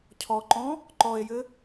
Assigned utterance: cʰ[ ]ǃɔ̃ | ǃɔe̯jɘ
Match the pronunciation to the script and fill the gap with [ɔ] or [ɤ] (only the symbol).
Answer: ɔ